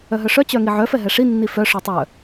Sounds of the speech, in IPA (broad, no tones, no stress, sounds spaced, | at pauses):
œ ɦ œ ʂ œ t͡ɕ œ ŋ i ʕ œ f ɛ ɦ ɛ ʂ i nː i f œ ʂ œ tˤ œ